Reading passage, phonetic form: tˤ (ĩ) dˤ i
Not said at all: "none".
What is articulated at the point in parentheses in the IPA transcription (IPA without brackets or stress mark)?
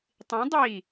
ĩ